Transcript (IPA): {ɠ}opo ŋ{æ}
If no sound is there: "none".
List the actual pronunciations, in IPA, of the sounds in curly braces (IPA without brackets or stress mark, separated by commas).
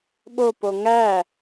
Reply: ɓ, æ